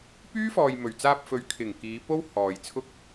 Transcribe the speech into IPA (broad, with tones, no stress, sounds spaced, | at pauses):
p yː˥ f ɔː˨ j m ɵ˨˩ ɥ t͡s aː˧ p̚ f ɵ˨˧ ɥ kʰ ɪ˨˩ ŋ k iː˨˧ p o˥ w h ɔː˨ j t͡sʰ ʊ˥ k̚